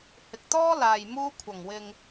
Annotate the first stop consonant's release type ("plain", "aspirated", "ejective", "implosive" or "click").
plain